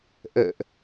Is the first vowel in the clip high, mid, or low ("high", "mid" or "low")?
mid